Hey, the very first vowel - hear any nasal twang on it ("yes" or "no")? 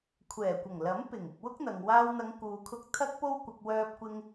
no